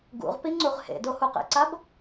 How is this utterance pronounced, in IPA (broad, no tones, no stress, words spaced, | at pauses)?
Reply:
ɡṵʁpi ŋ͡ǀuʁhḛdo huqḛǀab